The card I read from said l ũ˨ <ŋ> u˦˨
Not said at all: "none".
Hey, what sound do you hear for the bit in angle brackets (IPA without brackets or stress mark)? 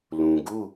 ɡ